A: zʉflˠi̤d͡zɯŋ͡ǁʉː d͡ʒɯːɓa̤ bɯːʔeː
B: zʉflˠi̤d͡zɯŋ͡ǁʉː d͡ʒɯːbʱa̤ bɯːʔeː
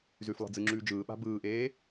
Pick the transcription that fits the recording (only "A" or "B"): A